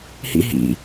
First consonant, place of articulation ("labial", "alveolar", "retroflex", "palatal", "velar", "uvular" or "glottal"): glottal